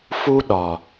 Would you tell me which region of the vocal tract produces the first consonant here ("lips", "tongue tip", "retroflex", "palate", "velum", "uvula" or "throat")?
lips